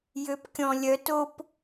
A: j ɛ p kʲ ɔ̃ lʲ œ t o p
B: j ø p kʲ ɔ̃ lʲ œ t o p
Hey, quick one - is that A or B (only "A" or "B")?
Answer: B